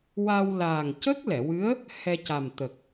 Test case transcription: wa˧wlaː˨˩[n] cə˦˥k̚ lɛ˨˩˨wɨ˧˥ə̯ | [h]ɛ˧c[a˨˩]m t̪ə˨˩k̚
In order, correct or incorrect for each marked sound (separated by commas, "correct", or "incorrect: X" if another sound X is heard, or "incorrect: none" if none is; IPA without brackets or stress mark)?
incorrect: ŋ, correct, correct